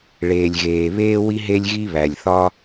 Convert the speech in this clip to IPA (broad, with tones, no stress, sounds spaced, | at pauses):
ɭ eː˩ lʲ ɣ eː˩ β eː˥ w i˥ ɦ e˥ lʲ ɣ i˥ β æ˩ lʲ θ ɒ˥